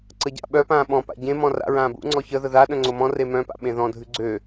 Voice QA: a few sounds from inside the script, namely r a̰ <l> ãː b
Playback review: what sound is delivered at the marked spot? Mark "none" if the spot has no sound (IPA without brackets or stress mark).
ɹ